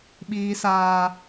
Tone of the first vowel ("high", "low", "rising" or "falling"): low